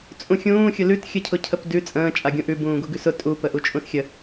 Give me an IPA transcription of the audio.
t͡sʼ ũ xʲ ũː xʲ ʊ l ʉ t xʲ ə cʰ ʊ cʰ ə p d ʉ t͡sʼ ə̃ː t͡ʃʼ a ɡʲ ũ ʔ ʉ b ũː ɡ u ɡ ʉ s ʊ tʼ u p ə ʔ u t͡ʃʼ ũ s xʲ ə

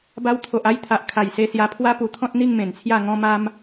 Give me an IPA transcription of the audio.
b a˧ w t̪ʰ o˨ ʔ a˥˧ j t̪ʰ a˨ ʔ kʰ a˨˩ j s e˧ s j a˧ pʰ w a˦ p u˧ t̪ʰ ɔ̃˦ t̚ n̪ i˥˧ ŋ m ẽ˨˩ n t͡sʰ j a˥˧ ŋ ɔ̃˦ m a˦ m

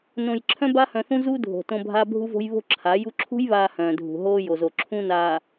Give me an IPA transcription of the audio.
n õ˨ j ǁʰ œ̃˦ b a˦ h œ̃˨ θ ũ˦ z u˦ dʱ o̤˨ t õ˦ bʱ a˦ bʱ u˦ v o̤˦ j β o̤˦ ǁʰ a˨˦ j u˦ ǁʰ ṳ˦ j β aː˨ h œ̃ː˨ dʱ ṳ˨ ɦ oː˦ j o˨ z o˨ ǁʰ ũ˦ n aː˨

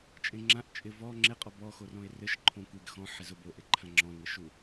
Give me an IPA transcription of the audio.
t͡ʃʼ ẽ ŋ͡ǁ ã ʔ t͡ʃʼ ɪ v ɔ ŋ͡ǁ e qʼ ɔ b ɔ x o r ɔ̃ e̯ r ɘ ʃ ǃʰ õ kʷ e ɡ x ɔ̃ ħ ɪ z ʊ b o ʔ e ǃʰ ã ŋ͡ǁ ɔ̃ ŋʷ e ʃ u

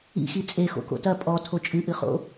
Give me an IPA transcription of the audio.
ḭ x i t͡sʼ e x o̰ k o̰ t ɐ pʼ ɔ tʰ o t͡ʃʼ ɨ ʔ ɨ χ o̰

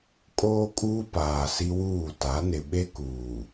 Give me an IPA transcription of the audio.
kʼ oː˦ kʼ uː˦ p aː˨ s i˦ w uː˦˨ t a˨˦ n ɪ˨ ɓ e˦ k uː˨

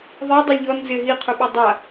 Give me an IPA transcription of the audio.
ðˤ ɛ dˤ o lʲ ʎ ɔ n z ɪ ɦ i qʰ u ɓ e dˤ a

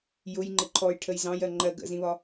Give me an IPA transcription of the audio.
j ʊ j ŋ͡ǃ ɪ ǃʰ ɔ j ʈʰ ə j z ɑ̃ j ɜ ŋ͡ǃ ɜ ɡ ə̰ z ĩ β ɒ

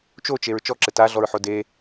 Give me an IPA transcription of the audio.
t͡ʃ o t͡ʃ e ɹ t͡ʃ ɔ ǁ ɘ t a ɮ ɔ ɹ ħ o d e

